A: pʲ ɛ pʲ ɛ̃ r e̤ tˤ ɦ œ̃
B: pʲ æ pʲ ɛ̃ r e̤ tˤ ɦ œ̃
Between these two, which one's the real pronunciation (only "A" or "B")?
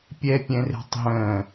A